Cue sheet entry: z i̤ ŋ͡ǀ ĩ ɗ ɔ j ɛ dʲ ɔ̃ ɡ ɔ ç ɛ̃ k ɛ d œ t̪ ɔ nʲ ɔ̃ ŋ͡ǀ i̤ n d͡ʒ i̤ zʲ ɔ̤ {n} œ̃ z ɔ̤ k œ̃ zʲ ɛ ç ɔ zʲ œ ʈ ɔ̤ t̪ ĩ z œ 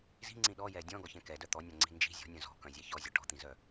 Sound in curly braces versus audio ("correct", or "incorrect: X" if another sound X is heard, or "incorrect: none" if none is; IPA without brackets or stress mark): incorrect: nʲ